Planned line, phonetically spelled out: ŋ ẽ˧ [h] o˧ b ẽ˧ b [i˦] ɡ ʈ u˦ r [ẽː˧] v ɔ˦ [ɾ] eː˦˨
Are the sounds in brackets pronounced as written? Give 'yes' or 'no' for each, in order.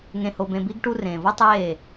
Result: yes, yes, no, no

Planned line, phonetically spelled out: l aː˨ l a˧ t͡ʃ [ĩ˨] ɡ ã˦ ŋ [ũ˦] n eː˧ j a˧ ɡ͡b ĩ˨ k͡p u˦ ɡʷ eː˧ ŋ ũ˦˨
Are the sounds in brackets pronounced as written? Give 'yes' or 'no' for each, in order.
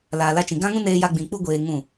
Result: yes, yes

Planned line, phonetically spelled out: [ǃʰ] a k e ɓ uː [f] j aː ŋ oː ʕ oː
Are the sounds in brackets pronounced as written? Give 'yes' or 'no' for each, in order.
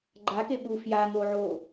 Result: no, yes

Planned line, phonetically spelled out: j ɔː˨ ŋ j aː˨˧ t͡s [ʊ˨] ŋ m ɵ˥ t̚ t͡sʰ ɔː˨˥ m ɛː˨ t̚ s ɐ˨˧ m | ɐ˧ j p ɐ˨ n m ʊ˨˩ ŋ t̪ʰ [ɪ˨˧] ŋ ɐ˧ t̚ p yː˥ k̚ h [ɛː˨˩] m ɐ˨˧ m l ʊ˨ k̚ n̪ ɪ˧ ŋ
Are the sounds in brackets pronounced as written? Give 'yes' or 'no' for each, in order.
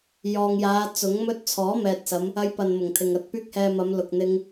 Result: no, no, no

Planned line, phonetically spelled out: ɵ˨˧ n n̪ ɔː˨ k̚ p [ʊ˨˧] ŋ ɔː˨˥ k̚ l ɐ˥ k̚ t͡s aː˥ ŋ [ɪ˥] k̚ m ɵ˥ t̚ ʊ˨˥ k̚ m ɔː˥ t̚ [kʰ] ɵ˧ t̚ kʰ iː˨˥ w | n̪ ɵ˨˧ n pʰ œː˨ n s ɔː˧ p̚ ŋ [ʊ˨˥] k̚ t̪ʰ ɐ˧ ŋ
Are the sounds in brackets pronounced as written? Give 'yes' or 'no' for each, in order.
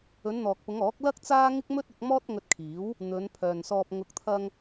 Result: yes, yes, no, yes

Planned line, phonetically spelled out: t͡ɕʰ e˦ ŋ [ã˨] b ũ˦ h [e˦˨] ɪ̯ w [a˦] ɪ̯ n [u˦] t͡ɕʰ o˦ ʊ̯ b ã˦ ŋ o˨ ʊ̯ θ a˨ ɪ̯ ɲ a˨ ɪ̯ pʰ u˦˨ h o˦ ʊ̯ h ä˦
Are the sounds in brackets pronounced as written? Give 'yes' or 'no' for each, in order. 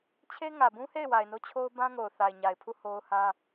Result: no, yes, no, no

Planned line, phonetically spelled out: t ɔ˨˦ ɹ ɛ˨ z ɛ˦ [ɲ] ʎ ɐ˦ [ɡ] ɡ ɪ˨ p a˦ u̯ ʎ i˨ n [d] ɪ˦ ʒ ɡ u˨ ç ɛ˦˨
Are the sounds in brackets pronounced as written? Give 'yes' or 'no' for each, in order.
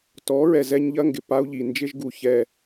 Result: yes, no, no

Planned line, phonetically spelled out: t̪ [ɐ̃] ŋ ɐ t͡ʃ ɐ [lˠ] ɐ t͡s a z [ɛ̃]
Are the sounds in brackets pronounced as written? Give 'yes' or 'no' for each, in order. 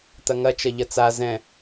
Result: no, no, yes

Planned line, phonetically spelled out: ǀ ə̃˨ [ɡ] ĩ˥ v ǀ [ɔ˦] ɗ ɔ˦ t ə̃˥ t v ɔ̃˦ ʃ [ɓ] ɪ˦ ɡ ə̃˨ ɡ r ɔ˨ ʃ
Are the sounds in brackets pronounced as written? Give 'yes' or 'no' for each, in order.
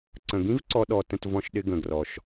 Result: yes, no, no

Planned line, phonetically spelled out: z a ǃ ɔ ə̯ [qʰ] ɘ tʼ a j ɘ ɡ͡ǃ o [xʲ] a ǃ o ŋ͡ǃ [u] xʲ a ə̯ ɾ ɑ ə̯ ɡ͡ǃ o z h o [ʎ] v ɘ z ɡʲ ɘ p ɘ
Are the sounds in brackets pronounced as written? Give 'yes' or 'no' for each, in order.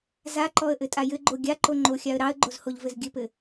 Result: no, no, no, yes

